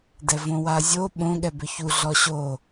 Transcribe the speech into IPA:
d ɛ v õ w a zʲ o ɓ õ ɠ ɛ b ʏ ç u ɮ ɔ ɕ o

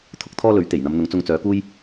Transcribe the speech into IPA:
t̪ʰ ʊ˥ k̚ t̪ʰ ɔː˥ l ɵ˨˥ ɥ t̪ e˨˩ j n̪ ɐ˨˧ m n̪ ʊ˨˥ ŋ t͡s ʊ˧ ŋ t͡s œː˨˥ k uː˥ j

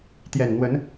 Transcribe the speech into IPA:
t̪ j ɛ˨˩ n n̪ w ə˨˦ n

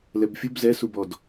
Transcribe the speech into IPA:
l ɛ b fʲ u b z ɛ s u b ɔ d

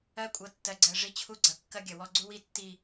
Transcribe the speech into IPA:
ɜ˦ kʷʼ ɤ˨ tː ɜ˨ ɡ͡ǀ ɜ˨ ʐ i˦ t͡ɕʰ u˦ ɡ͡ǀ ɐ˨ kː ɐ˦ ɡʲ ɐ˨ w ɔ˦ ɡ͡ǀ u˦ w i˦ tː i˨

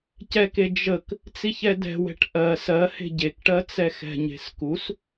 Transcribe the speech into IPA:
c ɛ k e d͡ʒ ə k | t͡s i ç ɛ d ɛ̤ w ɛ̤ ʈ ʔ ɜ s ɜ h e̤ ɟ e k ʈ ɜ t͡s ɛ x ɛ̤ ɲ e̤ s k u s

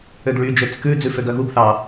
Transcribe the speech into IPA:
ø ɡ ɭ y d͡ʒ ø t͡s k ʉ d͡z ʉ f ø ɡ œ ɣ u ɡ θ ɑ

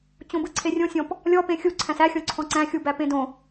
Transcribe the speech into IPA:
t͡ɕ õ b ɯ ǀʰ e rʲ õ sʲ ɔ̃ p | lʲ ɔ p ẽ xʲ u ǀʰ æ̃ s æ xʲ ɔ̃ ǀʰ ɔ̃ ǀ æ̃ xʲ u b æ p ẽ d õ

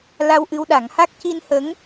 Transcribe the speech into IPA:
l a˧ w ʔ ɨ˧ w ɗ a˨˩˦ ŋ h a˦˥ k̚ c i˧ n h ə˧˥ ŋ

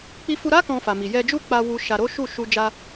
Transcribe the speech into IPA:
k͡p i˧ f u˧ ɾ a˦ k ɔ̃˧ f a˨ m i˨ j ɛ˧ d͡ʒ u˦ k͡p a˧ w u˦ ʃ a˧ ɾ o˦ ʃ u˦˨ ʃ u˧ d͡ʒ a˧

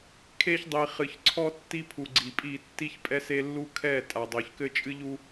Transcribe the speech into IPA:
kʰ e˦ ç dˤ i˨ χ ɨ˨ ç ǀʰ ɔ˦ tː i˦ pʰ u˨ ɡ͡ǀ i˨ pʼ i˦˨ tː i˦ ç pʼ ɛ˦ s e˦ lː u˦ kʰ ɛ˦˨ tʼ a˨ dˤ o˨ ç k ɘ˦ t͡ʃʼ ɨ˦ ʎ u˦

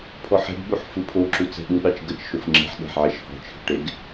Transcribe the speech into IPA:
pʰ ɔ ħ ɛ̤ ɡ ɠ u ħ f ɯ pʰ o ǁ u t͡s ɛ̤ ɗ u ɗ ɑ t͡ʃ ɡ ə t͡ʃ ʃ o f ŋ͡ǁ e̤ ħ ɗ ɛ̤ ħ ʕ ɛ ʃ h ɔ̤ t͡ʃʰ ə̤ ʈ e ɡ

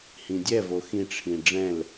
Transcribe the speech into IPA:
h ĩ dʲ ɛ v o x ĩ ʈ͡ʂʰ ĩ ɖ͡ʐ ɛ̃ l

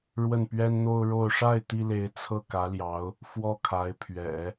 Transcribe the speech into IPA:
ɻ w ə˥˩ n p ɥ ɛ˥ n n̪ o˥ ʊ̯ ɻ o˥˧ ʊ̯ ʂ a˥˩ ɪ̯ t̪ i˥ l e˧˥ ɪ̯ t͡sʰ ɤ˥˩ k ä˧˥ l j ɑ˧˥ ʊ̯ | f w ɔ˥˩ kʰ a˧˥ ɪ̯ pʰ ɥ ɛ̰˨˩˦

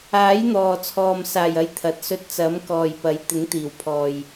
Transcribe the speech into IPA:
aː˨˥ j n̪ ɔː˨ t͡sʰ ɔː˨ m s aː˨˩ j ɐ˨˧ j t̪ʰ ɐ˨˥ t̚ s ɵ˧ t̚ t͡s ɐ˨˥ m k ɔː˨ j p ɐ˨˥ j t̪ ɪ˨˥ ŋ t̪ iː˨˩ w pʰ ɔː˨ j

